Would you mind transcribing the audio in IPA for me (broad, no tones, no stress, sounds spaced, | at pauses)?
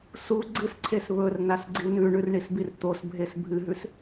s u ɡ͡ǀ ɨ s ǀʰ e s β ɵ r n a s ɡ͡ǀ i n ʉ ɳ ʉ r ɳ i s b i r t̪ o s bʱ e s bʱ ɨ ɦ ʉ s